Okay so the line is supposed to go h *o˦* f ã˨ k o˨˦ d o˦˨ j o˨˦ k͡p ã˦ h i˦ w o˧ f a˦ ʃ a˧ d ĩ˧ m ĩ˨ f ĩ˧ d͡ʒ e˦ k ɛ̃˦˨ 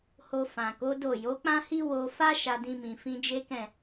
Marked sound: incorrect: o˧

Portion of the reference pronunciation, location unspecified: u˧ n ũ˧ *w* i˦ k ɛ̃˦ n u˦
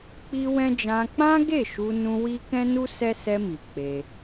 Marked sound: correct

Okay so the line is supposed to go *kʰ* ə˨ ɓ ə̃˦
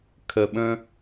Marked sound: correct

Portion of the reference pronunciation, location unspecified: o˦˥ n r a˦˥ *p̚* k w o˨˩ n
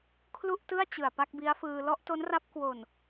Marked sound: correct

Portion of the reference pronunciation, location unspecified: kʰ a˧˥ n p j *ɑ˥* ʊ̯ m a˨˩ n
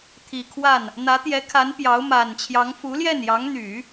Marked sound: incorrect: ɑ˧˥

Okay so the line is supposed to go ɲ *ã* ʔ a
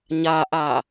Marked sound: incorrect: a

